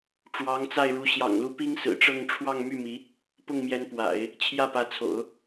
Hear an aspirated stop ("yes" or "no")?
yes